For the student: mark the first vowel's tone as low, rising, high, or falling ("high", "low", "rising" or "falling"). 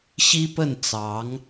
high